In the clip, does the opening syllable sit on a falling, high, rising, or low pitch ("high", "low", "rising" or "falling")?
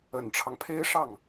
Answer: low